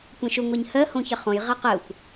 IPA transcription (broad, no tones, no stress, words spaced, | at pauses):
kʷɛ̃ʃʊ ŋʷɜɲhɜ hõçɐχõj ʁaqɜxʷ